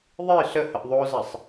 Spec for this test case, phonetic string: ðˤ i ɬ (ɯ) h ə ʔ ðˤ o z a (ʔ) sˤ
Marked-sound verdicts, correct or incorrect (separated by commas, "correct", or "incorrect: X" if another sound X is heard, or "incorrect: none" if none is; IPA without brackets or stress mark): incorrect: ə, incorrect: none